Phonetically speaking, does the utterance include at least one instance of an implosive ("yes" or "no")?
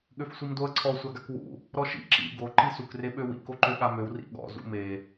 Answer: yes